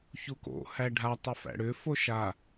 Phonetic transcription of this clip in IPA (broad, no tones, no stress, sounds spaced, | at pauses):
ç u k o̰ h æ ɖʱ a tˤ ɯ f æ̰ ɽ ʏ f o ʃ a